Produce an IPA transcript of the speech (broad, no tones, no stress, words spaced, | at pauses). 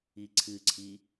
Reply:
iǀʰɨǀʰi